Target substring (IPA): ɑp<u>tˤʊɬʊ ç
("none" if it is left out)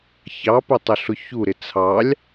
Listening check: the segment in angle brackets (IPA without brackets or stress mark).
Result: ʊ